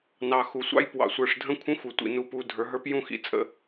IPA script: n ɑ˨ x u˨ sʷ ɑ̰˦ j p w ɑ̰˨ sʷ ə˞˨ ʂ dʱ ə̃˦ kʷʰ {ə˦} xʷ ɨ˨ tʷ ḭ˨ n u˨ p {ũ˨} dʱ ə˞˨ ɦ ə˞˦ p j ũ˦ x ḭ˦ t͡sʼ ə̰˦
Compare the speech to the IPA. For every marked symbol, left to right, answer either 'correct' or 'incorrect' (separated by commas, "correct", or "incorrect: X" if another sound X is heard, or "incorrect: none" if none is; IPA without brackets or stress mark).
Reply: incorrect: ə̃˦, incorrect: u˨